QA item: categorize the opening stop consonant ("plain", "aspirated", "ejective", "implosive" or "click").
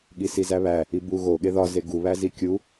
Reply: implosive